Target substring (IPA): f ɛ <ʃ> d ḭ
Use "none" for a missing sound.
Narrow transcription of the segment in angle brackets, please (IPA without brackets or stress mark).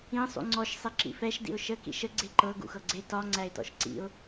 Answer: ʃ